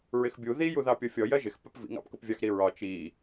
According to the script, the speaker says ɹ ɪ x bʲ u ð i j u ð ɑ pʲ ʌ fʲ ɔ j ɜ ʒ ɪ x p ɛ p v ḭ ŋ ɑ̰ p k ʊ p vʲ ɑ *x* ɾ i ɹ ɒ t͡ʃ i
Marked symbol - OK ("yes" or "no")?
yes